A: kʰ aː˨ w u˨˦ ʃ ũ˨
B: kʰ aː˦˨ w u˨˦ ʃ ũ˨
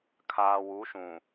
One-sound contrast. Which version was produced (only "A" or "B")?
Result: A